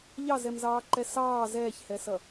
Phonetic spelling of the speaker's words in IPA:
ʎɑzɛmzɑːǃɛ sɑː zɛːçhɛsʌ

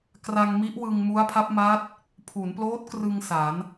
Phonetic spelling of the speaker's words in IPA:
kra˧ŋmi˦˥ʔ wɯ˧ŋ mu˦˥a̯pʰa˦˥p̚ ma˦˥t̚ | pʰu˩˦nploː˦˥t̚krɯ˧ŋ sa˩˦n

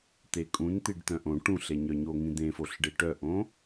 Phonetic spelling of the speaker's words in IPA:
t̪ekʼũn t̪iɖt̪œ̃ʔõ ʈũɬeɲœɲo ŋĩd̪ẽfoɬ ɖeʈœʔõ

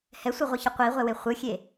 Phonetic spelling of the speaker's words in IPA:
hɛsʷɯʁʷɯçʌ qʷiʁʷɛwe χʷɯxʲe

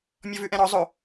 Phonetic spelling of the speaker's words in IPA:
mʲɔvʉʔɛ̃ɾɔ zˤo

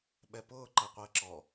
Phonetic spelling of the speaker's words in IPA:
ɓɛpʊːǃɛ qʷəːǁɔ

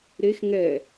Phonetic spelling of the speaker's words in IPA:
ɾex ŋɛ

